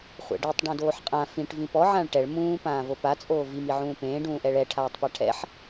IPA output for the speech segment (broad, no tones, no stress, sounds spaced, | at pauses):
χʷ ɛ̰ ɖ i tˤ ɖ õ d oː ħ qʼ ã f ĩ ʈ v ĩ p ɔ ʕ ã ɭ ʈ ɛ ɭ m ũː p ãː v o p a t͡sʼ oː v i m i ʕ ũː p ẽː ɖ ũː ʔ ɛ ɭ ɛ ʈʰ aː tˤ p a ʈʰ ɛ̰ ħ